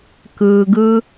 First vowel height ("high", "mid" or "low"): high